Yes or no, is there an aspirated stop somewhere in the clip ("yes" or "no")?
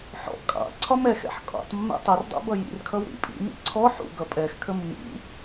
yes